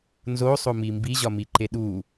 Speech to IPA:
n z o sˤ o m i m b i ʑ ɒ m i ǃ e ɗ u

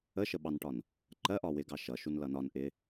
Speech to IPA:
ə ʃ ə ɓ ɑ n ʈ ɒ n | ǃ ɜ ʔ ɒ w ɪ ɡ ɑ ʃ ʌ ʃ u n l ʌ n ɒ n ʔ ɪ

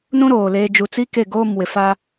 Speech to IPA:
n ũ˦ ɾ oː˨ l eː˦ d͡ʒ u˨ t͡s i˦ k e˦˨ ɡ oː˦˨ m w ɪ˨ f a˦

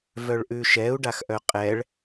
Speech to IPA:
v œ ɭ ʔ ʉ ʃ ɛ u̯ ɖ a x ʔ œ qʼ ɛ ɭ

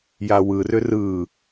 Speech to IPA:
j a w ɯ r ʏ r ɯ

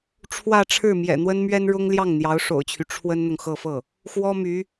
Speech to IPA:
ʈ͡ʂʰ w ä˥˧ ʈ͡ʂʰ ɻ̩˥˩ m j ɛ̰˨˩ n̪ w ə˥ n m ɥ ɛ˥ n ɻ ʊ˥ ŋ l j ɑ˥˩ ŋ n̪ j ɑ˧˥ ʊ̯ ʂ o̰˨˩ ʊ̯ t͡ɕʰ y˦ ʈ͡ʂʰ w ə˥ n n̪ ʊ˨ ŋ x ɤ˥˧ f ɤ˥˩ | x w ɔ˥ m y˧˥

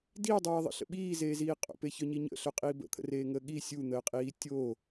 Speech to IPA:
d iː dˤ eː ðˤ ə̰ ɬ ə̰ ɓ iː z eː z iː qʼ o̰ p e ç œ ɲ i ɲ ə̰ ɬ œ qʼ iː b ə̰ t̪ʰ ə̰ r eː ŋ əː ɠ i sʲ u n̪ əː qʼ iː tʲ oː

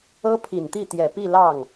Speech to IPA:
ɤ˥ pʰ i˨˩ n t̪ i˥˩ t̪ j ɛ˨˩ p i˥˧ l ɑ˥˩ ŋ

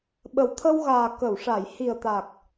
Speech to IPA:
ɓ ə˨˩ w t̪ʰ ə˧ w ɣ aː˨˩ k ə˨˩˨ w ʂ a˨˩˨ j h i˨˩ ə̯ t̪ a˨˩ k̚

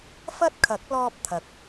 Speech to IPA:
f ɐ˥ t̚ kʰ ɐ˨˥ k̚ l ɔː˧ p̚ t̪ʰ ɐ˨ k̚

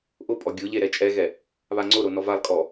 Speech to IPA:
ʔ ʊ pʼ ɔ ɡʲ ʊ ʎ e ɾ ɛ t͡ʃʼ ɛ ɣ ɛ | β a ŋ͡ǀ ʊ ɾ o n ɔ v a lˠ kʼ ɔ

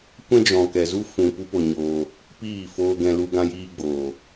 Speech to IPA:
kʷ ɛ̃˦ d͡ʒ ɔ̃˨ k ɛ˨ z u˦ f ũ˨ p u˦ p o˧ ɲ oː˧ | p iː˦˨ f oː˧ ɡ ɛ̃˧ l u˧ ɡ ã˧ j iː˧ ɡ͡b oː˨

